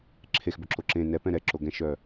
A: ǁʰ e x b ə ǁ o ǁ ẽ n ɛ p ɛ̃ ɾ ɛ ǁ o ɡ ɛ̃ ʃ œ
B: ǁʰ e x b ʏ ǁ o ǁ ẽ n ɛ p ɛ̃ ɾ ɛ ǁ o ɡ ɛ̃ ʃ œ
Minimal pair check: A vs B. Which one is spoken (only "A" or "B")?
B